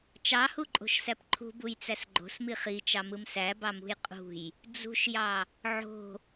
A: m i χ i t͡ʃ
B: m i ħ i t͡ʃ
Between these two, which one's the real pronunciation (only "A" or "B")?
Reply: A